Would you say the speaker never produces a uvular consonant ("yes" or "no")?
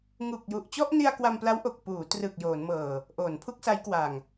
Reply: yes